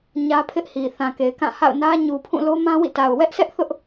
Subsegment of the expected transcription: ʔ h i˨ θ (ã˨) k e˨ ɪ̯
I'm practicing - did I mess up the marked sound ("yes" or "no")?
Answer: no